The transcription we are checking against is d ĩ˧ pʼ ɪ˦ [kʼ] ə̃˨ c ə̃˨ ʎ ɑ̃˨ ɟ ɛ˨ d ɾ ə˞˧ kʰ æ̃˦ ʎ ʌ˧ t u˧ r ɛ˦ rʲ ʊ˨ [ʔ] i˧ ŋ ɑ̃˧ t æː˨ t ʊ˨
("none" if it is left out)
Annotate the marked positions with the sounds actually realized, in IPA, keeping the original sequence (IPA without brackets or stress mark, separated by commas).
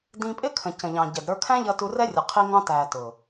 kʰ, qʰ